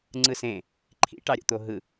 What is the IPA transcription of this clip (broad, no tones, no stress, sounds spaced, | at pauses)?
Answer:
ŋ͡ǀ ɯ s ẽ | ǃʰ ḭ ʈ ɑ ɾʲ o̰ t̪ o ɦ ɯ